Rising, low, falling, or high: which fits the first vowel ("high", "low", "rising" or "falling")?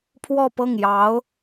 falling